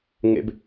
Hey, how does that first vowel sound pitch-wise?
high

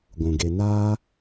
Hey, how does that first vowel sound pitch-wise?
low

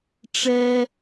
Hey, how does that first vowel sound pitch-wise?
high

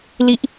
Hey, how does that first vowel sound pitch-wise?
falling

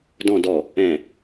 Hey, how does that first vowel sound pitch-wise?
low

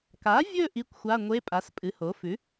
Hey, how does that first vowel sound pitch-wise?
rising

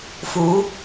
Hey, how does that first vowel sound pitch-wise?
rising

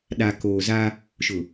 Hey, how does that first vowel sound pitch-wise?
low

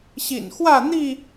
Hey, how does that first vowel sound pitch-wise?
low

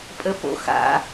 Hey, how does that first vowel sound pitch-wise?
high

